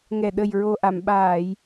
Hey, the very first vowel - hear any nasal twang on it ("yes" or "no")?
no